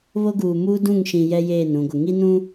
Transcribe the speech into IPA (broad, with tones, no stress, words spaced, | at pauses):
βo˦ɡuː˨muː˦ dũ˦˨ŋʃĩ˨ jɛ˦jeː˦˨nɾũ˨ɡʷɪ˨ ŋi˦nũ˦